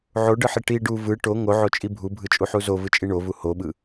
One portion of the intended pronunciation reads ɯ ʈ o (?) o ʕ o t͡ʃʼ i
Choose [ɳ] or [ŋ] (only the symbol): ŋ